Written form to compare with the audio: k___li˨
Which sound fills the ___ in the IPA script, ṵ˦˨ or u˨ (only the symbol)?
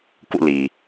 ṵ˦˨